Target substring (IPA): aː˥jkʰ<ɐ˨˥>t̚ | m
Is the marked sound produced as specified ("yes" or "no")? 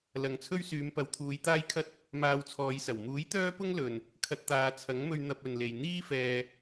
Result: no